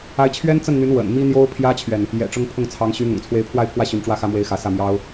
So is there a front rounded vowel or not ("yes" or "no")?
yes